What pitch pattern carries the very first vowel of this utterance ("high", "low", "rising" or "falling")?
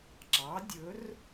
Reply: rising